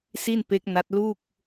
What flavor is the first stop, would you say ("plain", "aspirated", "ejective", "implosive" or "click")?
plain